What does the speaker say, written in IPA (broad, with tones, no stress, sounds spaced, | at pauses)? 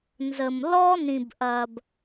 n z ə˨ m l ɔ˦ n ĩ˨ b ʔ ɐ˨ b